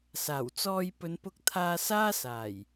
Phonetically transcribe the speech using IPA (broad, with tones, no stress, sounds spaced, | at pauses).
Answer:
s aː˨˩ w t͡s ɔː˧ j p ɵ˨˧ n p ʊ˧ k̚ t̪ʰ aː˧ s aː˥ s aː˨˩ j